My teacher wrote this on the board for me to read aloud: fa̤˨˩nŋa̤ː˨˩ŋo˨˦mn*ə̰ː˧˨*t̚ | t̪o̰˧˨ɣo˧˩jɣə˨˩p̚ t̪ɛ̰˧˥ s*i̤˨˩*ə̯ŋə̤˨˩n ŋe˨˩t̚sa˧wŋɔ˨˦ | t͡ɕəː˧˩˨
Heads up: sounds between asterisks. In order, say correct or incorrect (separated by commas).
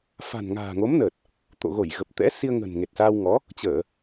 incorrect, incorrect